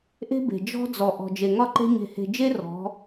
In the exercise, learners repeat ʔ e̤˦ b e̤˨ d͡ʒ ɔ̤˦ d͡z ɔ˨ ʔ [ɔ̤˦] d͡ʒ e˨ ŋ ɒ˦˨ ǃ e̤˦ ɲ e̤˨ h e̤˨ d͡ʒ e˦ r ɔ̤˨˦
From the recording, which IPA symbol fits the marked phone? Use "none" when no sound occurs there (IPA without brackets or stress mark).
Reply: ɔ̤˨